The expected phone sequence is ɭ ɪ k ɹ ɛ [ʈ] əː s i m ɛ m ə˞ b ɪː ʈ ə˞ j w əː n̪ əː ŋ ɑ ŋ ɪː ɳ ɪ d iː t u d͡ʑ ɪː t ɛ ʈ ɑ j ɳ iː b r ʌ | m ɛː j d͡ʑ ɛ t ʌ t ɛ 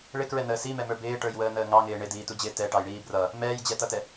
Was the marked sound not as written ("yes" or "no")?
yes